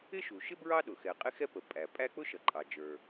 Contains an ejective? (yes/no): yes